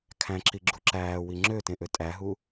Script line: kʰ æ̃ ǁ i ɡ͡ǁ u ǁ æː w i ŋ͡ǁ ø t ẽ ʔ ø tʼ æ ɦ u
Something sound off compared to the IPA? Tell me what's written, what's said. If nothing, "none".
none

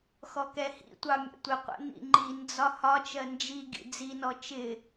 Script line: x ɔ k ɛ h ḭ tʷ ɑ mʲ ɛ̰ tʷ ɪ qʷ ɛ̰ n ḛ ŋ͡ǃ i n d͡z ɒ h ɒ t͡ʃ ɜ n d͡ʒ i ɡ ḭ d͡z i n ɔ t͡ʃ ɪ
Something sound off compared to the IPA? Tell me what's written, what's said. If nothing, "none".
ḛ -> ḭ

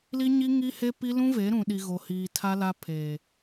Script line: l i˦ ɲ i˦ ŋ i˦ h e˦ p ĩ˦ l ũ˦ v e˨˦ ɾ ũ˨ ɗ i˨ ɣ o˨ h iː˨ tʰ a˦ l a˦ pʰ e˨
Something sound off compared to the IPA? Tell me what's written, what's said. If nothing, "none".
ĩ˦ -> i˦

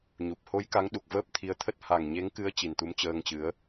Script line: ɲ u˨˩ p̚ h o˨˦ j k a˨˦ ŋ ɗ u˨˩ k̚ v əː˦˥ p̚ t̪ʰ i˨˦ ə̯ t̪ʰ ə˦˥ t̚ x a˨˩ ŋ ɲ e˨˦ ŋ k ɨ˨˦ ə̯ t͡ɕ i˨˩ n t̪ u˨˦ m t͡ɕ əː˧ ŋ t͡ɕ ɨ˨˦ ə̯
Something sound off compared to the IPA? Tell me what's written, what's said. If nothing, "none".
x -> h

